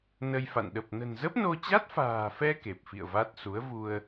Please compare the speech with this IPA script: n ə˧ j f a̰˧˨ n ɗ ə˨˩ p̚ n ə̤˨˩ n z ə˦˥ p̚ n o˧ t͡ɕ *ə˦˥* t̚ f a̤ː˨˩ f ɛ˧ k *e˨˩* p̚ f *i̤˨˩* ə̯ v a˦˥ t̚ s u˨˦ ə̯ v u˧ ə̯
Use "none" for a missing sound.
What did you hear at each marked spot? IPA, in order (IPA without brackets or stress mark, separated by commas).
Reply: a˦˥, e˨˩, ḭ˧˨